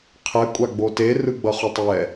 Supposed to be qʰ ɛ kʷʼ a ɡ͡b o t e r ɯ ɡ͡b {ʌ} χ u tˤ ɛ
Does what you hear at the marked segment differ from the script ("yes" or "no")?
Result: no